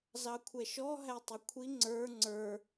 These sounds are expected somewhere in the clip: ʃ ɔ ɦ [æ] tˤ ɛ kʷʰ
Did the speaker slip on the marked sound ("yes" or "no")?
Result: no